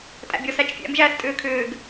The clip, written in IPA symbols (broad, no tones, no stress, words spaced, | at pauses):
tʼæ̰bʲɔs æt͡ʃfʲæ̰m ʒæːstʼʏːkʰʏːɡ